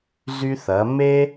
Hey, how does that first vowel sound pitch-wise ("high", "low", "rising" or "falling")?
high